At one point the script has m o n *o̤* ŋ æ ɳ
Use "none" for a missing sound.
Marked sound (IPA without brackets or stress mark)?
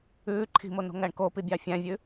o̤